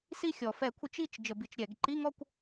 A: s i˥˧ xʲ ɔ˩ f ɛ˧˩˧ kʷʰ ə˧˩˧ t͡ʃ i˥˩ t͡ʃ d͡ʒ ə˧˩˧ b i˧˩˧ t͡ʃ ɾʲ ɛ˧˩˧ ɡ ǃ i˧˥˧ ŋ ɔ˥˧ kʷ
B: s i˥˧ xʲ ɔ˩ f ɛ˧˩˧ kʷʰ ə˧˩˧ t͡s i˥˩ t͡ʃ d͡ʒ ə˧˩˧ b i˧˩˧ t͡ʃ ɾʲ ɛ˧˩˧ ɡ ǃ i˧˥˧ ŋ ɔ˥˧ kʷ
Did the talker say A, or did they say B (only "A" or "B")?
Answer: A